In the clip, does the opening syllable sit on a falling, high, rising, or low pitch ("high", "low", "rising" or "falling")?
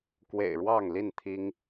low